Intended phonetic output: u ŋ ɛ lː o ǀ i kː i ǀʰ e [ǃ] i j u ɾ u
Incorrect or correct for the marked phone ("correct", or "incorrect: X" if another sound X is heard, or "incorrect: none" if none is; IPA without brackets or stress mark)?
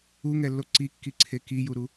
incorrect: k